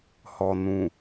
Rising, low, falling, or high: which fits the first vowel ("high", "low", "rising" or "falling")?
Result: low